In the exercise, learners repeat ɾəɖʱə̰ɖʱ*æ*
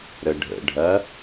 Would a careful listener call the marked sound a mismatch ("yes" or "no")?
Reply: yes